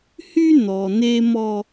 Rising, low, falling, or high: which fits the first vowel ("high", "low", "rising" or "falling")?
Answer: high